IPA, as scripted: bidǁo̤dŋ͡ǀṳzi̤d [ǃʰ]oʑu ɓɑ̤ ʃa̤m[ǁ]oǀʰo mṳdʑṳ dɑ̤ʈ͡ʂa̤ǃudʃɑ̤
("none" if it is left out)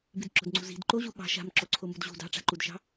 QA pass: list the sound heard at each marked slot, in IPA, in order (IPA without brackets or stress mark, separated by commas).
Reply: ǃ, ǁ